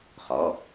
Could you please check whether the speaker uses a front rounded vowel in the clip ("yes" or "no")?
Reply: no